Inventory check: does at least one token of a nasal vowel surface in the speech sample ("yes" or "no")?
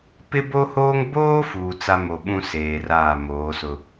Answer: yes